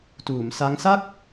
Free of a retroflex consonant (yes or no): yes